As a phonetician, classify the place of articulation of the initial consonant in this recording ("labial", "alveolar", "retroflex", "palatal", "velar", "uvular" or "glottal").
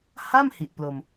glottal